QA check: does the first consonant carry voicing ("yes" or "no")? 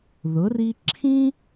yes